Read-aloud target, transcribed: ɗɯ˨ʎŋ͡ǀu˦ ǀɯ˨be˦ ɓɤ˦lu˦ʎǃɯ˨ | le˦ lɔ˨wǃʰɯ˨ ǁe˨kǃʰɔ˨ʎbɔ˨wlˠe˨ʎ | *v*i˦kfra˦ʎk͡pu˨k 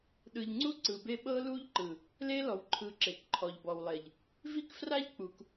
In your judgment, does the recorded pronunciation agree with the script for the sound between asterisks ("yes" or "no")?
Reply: yes